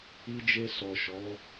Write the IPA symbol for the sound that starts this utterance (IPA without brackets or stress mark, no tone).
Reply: i